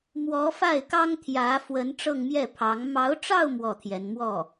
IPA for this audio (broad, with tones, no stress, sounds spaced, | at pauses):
m w ɔ˧˥ f a˥˩ ɪ̯ k ɑ˥ ŋ t̪ʰ j ä˧˥ f w ə˧˥ n ʈ͡ʂ ɤ˥˧ ŋ m j ɛ˥˩ pʰ ɑ˧˥ ŋ m ɑ˧˥ ʊ̯ ʈ͡ʂ ɑ˥˧ ʊ̯ m w ɔ˥˩ t̪ʰ j ɛ˧˥ n m w ɔ˥˩